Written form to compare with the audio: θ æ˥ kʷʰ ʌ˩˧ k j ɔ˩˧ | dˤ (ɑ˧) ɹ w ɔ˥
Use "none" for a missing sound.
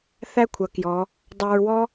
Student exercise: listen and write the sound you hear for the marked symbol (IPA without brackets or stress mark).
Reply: ɑ˧